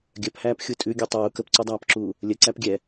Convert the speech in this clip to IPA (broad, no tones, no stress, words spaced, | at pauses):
ɡʲœphæːp xʲutʼʉɡʲʉ tˤuː kəpǀudˤæːpǁuː | lʲə ǀæpɡʲɛ